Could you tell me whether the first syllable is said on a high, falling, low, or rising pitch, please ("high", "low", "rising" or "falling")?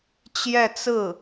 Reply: falling